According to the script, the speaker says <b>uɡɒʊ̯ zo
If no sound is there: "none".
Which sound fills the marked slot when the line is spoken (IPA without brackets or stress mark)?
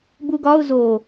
b